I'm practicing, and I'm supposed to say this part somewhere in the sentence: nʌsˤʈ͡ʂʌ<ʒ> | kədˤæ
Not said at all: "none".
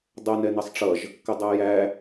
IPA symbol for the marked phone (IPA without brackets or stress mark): ʒ